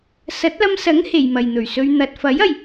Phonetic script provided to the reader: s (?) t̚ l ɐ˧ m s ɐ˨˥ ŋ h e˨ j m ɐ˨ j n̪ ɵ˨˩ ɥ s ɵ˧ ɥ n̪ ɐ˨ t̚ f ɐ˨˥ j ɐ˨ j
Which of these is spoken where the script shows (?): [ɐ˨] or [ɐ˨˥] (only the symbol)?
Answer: ɐ˨˥